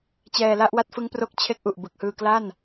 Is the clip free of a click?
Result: yes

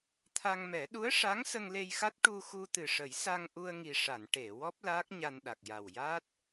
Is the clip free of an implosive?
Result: no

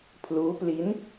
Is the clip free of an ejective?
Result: yes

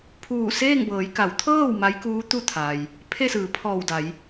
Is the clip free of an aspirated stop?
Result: no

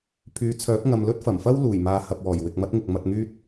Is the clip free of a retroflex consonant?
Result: yes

